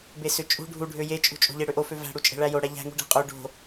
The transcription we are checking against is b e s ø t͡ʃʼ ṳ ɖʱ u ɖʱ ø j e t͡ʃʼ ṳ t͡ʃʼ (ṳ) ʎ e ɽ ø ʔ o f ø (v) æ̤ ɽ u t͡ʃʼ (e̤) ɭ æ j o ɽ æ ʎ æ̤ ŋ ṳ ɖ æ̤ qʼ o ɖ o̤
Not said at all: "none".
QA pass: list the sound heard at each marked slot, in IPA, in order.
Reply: o̤, v, e̤

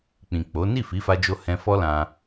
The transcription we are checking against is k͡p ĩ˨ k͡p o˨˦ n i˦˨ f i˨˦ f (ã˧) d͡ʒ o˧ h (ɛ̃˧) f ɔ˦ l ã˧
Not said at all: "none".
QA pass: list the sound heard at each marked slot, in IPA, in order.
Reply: a˧, ɛ̃˧

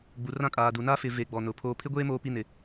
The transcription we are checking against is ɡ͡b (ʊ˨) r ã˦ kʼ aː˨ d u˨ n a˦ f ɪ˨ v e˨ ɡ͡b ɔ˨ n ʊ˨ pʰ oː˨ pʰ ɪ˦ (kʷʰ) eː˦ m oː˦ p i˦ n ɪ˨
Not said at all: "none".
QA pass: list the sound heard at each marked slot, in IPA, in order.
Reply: u˨, ɡʷ

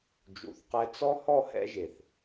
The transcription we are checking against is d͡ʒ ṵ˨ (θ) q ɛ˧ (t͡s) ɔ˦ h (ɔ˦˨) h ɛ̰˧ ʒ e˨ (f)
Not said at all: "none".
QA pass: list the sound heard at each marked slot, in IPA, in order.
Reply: θ, t͡s, ɔ˦˨, θ

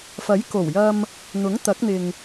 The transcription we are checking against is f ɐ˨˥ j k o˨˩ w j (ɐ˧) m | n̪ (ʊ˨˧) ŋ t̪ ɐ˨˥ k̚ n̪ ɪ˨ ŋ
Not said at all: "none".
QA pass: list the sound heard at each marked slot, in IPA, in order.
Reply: ɐ˧, ʊ˨˥

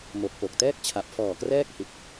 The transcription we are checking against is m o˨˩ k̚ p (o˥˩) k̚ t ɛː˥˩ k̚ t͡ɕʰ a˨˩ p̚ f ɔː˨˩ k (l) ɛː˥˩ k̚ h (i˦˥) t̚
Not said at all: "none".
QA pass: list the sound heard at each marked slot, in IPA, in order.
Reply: o˨˩, r, i˨˩

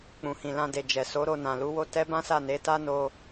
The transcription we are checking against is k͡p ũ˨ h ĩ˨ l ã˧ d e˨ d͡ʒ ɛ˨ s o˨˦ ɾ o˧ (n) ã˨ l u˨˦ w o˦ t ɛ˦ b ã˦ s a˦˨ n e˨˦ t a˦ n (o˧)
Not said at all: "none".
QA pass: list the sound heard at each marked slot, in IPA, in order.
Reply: n, o˧

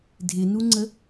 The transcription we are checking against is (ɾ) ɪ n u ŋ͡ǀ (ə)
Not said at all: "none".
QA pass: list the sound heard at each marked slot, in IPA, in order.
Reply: dʱ, ə

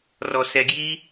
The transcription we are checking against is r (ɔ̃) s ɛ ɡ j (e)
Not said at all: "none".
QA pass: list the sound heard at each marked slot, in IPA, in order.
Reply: ɔ, i

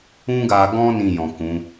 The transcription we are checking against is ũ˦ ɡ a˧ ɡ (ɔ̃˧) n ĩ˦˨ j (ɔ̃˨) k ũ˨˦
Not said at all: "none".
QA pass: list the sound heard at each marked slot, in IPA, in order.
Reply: ɔ̃˦, ɔ̃˨

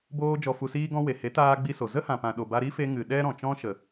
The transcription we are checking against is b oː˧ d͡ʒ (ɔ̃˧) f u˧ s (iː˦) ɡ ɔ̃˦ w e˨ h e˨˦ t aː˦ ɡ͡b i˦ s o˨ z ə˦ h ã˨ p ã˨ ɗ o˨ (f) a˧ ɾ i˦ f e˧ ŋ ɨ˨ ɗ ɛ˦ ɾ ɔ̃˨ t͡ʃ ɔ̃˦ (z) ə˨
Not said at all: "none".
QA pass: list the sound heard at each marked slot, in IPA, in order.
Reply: ɔ˧, iː˦, b, ʃ

